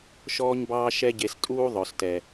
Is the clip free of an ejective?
no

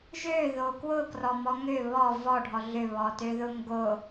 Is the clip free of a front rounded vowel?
no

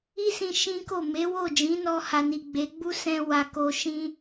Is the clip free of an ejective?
yes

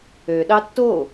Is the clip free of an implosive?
no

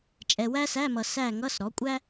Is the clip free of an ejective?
no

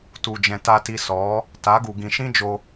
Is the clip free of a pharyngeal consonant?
yes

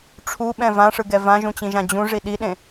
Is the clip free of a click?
yes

